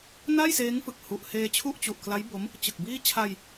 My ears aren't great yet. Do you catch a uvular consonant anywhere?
no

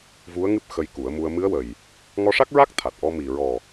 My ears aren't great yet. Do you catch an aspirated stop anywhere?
yes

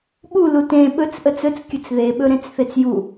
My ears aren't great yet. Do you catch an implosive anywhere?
yes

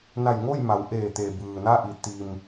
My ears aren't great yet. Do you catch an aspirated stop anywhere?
no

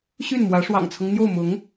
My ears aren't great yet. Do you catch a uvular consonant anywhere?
no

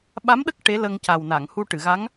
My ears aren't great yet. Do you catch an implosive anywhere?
yes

